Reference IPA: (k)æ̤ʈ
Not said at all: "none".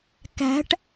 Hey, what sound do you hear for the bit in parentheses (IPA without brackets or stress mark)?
k